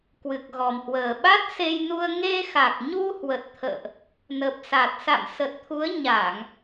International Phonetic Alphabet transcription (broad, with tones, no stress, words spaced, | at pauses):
kwɨ˨˩k̚ɣɔ˨˩mhwəː˨˩ ɓa˦˥t̚se˧jnu˧ə̯ ŋe˧xa˨˩k̚ɲu˧ hwə˨˩t̚t̪ʰə̰ː˧˨ʔ | nə˨˩p̚sa˨˩t̚ sa̰˧˨msə˨˩t̚t̪ʰu˨˦ə̯ ɲa˧˩˨ŋ